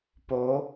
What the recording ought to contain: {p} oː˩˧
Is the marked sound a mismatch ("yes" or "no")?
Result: no